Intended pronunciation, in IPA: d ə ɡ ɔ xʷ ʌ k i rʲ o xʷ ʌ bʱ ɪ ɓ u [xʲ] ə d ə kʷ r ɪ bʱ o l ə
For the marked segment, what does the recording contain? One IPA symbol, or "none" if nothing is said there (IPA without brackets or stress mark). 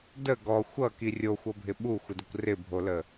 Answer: xʷ